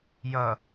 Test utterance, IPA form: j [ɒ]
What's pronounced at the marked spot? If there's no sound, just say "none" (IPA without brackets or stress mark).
ʌ